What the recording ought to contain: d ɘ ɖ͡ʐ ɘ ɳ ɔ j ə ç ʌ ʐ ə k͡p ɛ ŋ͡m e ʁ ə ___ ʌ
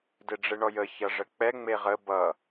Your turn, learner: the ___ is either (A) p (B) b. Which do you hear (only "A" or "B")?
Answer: B